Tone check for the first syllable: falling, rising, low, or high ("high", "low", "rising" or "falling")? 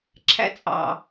high